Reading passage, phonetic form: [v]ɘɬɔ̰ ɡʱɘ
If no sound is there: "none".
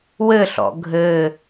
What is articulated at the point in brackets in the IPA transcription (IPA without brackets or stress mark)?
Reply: w